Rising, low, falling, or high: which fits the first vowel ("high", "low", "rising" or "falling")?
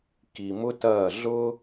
low